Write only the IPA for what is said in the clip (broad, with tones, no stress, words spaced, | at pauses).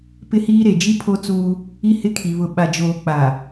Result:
pɪ˦hiː˦ɾe˨ d͡ʒi˦pʰo˦ t͡suː˦ | i˦hɪ˦kʰi˨ βʊ˨ɓa˨d͡ʒoː˨ k͡pa˨